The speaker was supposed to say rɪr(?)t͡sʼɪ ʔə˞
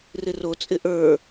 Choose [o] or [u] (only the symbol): o